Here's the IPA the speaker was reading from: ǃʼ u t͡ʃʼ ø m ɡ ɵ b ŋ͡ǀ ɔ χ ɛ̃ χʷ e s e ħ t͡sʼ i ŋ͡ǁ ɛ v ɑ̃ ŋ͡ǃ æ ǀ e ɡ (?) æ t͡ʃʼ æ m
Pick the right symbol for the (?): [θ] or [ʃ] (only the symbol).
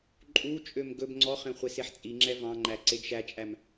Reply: ʃ